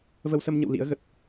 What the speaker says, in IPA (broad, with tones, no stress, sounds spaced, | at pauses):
v ə˧ w s ə˧ m ɲ ə̰˧˨ w l ḭ˧˥ ə̯ ɣ ə˨˩ t̚